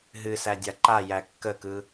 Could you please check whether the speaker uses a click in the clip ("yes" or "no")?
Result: yes